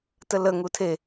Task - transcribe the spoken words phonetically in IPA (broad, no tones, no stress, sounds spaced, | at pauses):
t ə l ə ŋ u tʰ e